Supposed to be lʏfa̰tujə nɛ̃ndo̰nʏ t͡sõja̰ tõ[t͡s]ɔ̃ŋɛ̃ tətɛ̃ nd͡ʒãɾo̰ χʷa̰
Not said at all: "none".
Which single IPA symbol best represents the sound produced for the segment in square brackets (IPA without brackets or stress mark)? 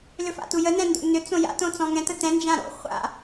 t͡s